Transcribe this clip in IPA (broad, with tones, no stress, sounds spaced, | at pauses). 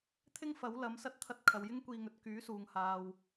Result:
t̪ʰ ɪ˥ ŋ f ɐ˨˥ w l ɐ˨˥ m s ɐ˥ t̚ t̪ʰ ɐ˥ t̚ kʰ ɐ˧ w j ɪ˥ ŋ kʷ iː˧ ŋ ɵ˨˥ t̚ k yː˨˥ s uː˧ ŋ h aː˧ w